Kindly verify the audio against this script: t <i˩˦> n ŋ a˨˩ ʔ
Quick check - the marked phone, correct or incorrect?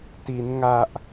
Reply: correct